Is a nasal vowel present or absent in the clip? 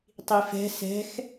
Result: absent